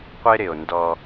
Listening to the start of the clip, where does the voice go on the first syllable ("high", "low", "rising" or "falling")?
high